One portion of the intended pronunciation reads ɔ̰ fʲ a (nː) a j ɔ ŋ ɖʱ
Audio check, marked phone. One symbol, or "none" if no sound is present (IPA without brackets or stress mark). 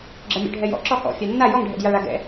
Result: nː